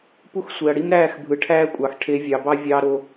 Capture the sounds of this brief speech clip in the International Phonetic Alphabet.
pu˦x sʷe˨ɐ̯ɽi˦mɾæː˦˨x bʱɯ˨ʈʰæː˦kʷʼɑ˨x ʈʰe˨˦vʲɑ˨bɑ˦ vʲɑː˦ɾo˦

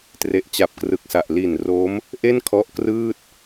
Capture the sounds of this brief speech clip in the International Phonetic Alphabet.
tre˨˩ʔt͡ɕa˨˩p̚krɯ˨˩k̚sa˨˩ʔ li˨˩nro˦˥m | ʔe˥˩nkʰɔ˦˥ʔkrɯː˥˩t̚

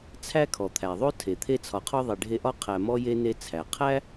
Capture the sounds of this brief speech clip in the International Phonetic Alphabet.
t͡sʰæ˥kʰɔ˩t̪ʰæ˩ ðˤo˥tʰe˩t̪ʰe˦t͡sʰɒ˨ qʰɔ˥ðˤe˨ɖʱe˦ʔɒ˥ qʰæ˨mɔ˦ je˥ne˦t͡sʰæ˩ qʰæ˥

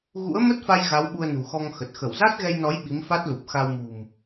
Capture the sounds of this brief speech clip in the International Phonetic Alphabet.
ɣṵ˧˥ə̯ mə˦˥t̚fa˧j ɣa˨˦wɓu˧ə̯ nṳ˨˩xɔ˧ŋxə˨˩t̚ xə˧˩wza˦˥t̚ɣɛ˧jnɔ˨˦j ɓi˨˦mfa˦˥t̚lu˨˩p̚ xa˧wmṳ˨˩m

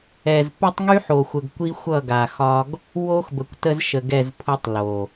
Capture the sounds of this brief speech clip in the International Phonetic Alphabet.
ɛ˨z pʊ˦tˤŋy˦ħo˨xʷə˨ɡ kʷi˦ xʷʌ˦˨ɡa˨ xɒ˦ɡ | wo˦xbə˨kʷtə˦zʃə˨ ɡɛ˦˨zpʰʊ˦tˤ lo˨

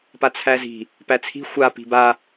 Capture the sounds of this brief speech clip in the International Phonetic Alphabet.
pat͡sʰæzi̤ | pæt͡sʰi̤ xʷa pi̤ba

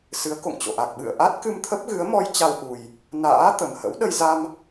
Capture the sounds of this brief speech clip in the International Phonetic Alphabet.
sɨ˨˦ə̯ko̰˧˨ŋt͡ɕo̰˧˨ʔa˨˩k̚ ɓɨ̰˧˨ə̯ʔa˦˥t̚ kɨ˧mt̪ʰə˦˥p̚ɣɨ˨˦ə̯mɔ˧j t͡ɕa˧wʔu˨˩j | na̰ː˧˥ t̪ə˨˩mhə̰˧˥w ɗə˧jza˧m

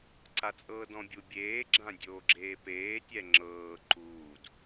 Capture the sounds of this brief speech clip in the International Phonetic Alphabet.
ǀat͡sʼɤːdɔ̃bʲu bʲeːɡ͡ǁã dʲoːɡ͡ǁeːpeːtʲɛ ŋ͡ǁɤː ǃuːd

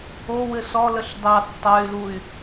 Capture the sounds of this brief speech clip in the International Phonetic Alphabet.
owɘ sɔ ləɬdɑ tːɑy̯luy̯

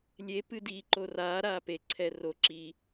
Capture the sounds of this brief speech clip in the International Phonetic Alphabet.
lʲe pɨdi ǃoraː ɾaːpe ǀʰɛro ǁi

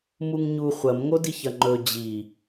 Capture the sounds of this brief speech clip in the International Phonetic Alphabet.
muŋɲu χʷɐmŋodiç ɐŋ͡ǃɵ d͡ʑi

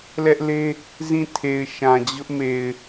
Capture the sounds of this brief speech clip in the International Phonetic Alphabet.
lɛ˦ʔle˦ | zĩ˦˨tʰe˨ɪ̯ ʃã˨d͡ʑʊ˦ʔme˨ɪ̯

